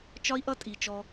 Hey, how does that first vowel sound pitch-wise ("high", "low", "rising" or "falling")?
high